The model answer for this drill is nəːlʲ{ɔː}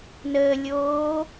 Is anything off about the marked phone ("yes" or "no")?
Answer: yes